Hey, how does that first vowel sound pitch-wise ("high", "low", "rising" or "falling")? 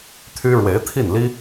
high